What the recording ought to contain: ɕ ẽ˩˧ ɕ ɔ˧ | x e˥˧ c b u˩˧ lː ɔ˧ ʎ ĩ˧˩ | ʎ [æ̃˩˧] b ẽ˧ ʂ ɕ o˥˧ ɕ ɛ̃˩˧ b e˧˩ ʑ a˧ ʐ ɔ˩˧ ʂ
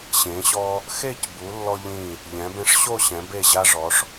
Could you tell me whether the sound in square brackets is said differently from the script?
yes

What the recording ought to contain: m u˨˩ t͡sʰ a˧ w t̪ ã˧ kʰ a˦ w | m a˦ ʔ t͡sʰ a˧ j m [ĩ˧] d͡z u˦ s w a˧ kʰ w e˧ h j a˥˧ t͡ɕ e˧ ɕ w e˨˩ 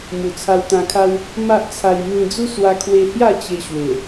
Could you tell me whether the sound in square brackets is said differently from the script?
no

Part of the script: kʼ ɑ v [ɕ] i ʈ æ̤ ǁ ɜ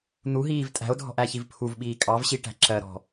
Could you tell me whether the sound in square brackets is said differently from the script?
no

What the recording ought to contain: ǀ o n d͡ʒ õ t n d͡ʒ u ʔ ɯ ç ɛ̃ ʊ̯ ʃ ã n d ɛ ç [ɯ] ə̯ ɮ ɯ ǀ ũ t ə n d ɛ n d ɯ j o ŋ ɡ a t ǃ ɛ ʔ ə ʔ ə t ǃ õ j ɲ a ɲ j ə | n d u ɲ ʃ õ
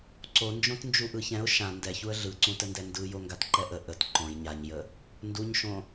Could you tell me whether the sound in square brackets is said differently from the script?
yes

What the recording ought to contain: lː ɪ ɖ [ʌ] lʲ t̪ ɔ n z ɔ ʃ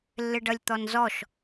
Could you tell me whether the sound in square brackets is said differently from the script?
no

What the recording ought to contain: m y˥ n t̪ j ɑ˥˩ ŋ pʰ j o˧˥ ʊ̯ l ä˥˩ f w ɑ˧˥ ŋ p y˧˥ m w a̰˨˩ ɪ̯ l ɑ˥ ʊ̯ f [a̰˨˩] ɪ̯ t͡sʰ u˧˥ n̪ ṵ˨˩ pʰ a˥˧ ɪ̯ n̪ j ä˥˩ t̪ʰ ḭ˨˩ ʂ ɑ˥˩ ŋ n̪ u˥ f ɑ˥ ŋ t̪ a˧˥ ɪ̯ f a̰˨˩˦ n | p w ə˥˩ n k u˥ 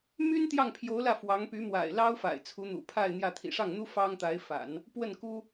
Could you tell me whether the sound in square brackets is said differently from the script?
no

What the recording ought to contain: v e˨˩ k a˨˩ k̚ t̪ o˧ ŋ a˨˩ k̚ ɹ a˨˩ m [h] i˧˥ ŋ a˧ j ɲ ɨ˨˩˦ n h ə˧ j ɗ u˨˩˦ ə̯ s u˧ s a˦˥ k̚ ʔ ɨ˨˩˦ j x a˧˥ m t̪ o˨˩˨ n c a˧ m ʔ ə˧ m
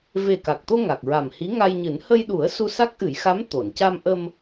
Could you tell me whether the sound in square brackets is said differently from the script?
no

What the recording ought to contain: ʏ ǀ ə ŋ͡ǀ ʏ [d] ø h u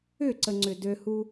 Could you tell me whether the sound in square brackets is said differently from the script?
no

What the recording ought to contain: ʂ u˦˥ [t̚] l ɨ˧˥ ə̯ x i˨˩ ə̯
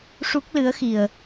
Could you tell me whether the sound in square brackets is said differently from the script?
yes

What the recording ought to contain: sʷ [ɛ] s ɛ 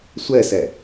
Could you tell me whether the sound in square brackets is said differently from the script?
no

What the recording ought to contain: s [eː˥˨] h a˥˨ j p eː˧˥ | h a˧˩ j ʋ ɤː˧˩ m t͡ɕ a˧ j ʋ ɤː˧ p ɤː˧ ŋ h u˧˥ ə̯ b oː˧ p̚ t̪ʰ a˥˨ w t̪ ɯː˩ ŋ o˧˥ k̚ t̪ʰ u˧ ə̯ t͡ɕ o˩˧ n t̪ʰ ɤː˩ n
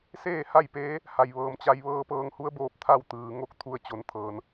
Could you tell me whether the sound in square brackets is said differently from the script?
no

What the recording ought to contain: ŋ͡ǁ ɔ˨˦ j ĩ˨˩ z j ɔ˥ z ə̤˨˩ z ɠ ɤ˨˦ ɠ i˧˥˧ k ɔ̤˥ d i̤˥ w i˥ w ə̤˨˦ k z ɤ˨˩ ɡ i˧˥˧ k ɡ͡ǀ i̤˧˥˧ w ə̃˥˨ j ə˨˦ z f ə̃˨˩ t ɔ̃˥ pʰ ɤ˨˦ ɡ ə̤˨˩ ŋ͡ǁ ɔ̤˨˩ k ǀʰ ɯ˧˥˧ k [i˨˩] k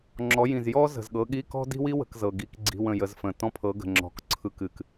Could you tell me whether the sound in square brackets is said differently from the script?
yes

